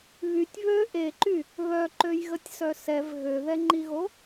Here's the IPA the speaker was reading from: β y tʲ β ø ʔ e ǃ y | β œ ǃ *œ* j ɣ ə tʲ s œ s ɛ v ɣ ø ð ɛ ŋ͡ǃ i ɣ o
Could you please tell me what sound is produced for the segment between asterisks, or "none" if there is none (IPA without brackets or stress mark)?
ø